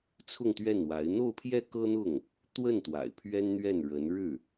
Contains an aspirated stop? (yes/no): yes